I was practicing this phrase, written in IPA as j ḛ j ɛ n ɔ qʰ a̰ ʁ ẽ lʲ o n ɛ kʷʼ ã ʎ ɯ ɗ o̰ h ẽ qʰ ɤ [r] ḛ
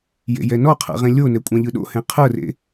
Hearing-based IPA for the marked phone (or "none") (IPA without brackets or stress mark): r